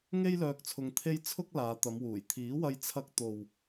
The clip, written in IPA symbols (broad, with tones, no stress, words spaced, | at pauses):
ŋe˥jlœː˧k̚t͡sʰʊ˧ŋ t̪ʰe˥j t͡sʰʊ˥k̚laː˨˧t̪ɐ˨˧mwuː˨˩j t̪ʰiː˨˥wɐ˧jt͡sʰɐ˧k̚ t̪o˨w